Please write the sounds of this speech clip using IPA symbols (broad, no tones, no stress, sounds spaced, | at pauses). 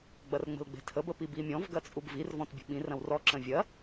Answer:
ɡ͡b ɐ r ŋ͡m ə̤ l ɡ͡b e̤ tʰ ə b ə p i b i mʲ ɔ̃ v ɡ ɐ t͡sʼ u b v i r v ɔ̃ t bʲ ə̤ ɓ ĩ r ɐ̃ w r ɔ ǁ ə̃ vʲ ɐ